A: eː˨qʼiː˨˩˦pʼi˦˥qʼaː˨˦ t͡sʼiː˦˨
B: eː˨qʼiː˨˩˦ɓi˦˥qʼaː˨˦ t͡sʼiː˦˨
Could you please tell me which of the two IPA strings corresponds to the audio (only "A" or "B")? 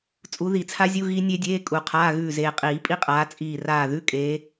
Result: A